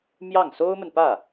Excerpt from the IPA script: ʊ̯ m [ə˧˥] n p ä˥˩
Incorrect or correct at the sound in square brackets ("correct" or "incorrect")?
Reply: incorrect